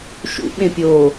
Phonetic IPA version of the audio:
ʃ ṵ ɓ ẽ pʲ oː

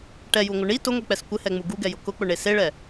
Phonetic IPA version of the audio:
ʈ ɛ j u ŋʷ ɪ ɳ i t ʊ ŋʷ i k͡p ɛ s kʷ ɪ h ɛ ŋ͡m u ɡ u ɡ ɛ j ʊ k ʊ k͡p ʊ ɳ e s e ɭ ɛ

